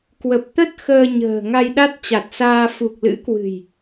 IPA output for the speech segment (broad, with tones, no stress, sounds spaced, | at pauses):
k w ə˨˩ p̚ t̪ ə˦˥ t̚ x əː˧ ɲ ə̤ː˨˩ ŋ a˧ j ɗ a˦˥ t̚ t͡ɕ a˨˩ t̚ s aː˧ f u˨˩ k̚ l ɨ̰˧˥ k w ɨ̤˨˩ j